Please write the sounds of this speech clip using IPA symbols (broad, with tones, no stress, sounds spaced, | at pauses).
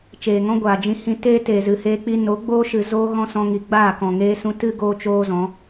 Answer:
t͡ʃ eː˨ ŋ ɔ̃˦ ɡʷ aː˨ d͡ʒ ĩ˧ h ĩ˧ t eː˦ t eː˨ z ɨ˨ h eː˧ k͡p i˧ n o˨˦ ɡ͡b oː˦ ʃ ɨ˨ z oː˦ ɣ ɔ̃˦ s ɔ̃˧ ŋ i˨ ɡ͡b aː˦˨ k ɔ̃˨ ŋ eː˧ s ũ˧ t ɨ˦ ɡ oː˦ t͡ʃ oː˦ z ɔ̃˨˦